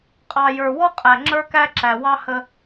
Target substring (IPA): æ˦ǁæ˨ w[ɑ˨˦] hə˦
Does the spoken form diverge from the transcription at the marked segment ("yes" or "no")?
yes